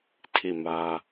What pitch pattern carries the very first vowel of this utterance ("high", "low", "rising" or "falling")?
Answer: falling